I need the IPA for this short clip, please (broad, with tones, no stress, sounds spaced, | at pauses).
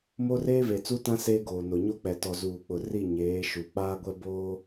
m o˦ r eː˦ v e˨ t͡s u˦ t ã˦ s eː˦ ɡ oː˨ n o˨ ɲ o˦ k͡p ɛ˨ t ɔ˨ z uː˨ k͡p ʊ˨ r i˦˨ ɲ eː˨˦ ʃ u˨ k͡p aː˦ ɡʷ ɛ˦ b oː˦